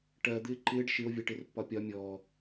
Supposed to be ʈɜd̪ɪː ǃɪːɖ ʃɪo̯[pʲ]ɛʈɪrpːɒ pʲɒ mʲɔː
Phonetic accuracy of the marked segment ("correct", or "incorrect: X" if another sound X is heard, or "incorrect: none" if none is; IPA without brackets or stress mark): incorrect: vʲ